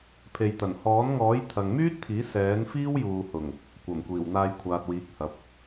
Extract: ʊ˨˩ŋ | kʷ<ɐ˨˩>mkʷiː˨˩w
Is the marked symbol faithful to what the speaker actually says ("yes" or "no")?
yes